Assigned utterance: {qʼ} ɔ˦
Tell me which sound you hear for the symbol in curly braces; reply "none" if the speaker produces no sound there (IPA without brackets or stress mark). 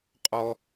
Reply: qʼ